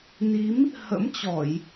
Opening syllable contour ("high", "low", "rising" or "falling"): rising